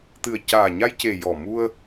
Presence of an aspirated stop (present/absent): absent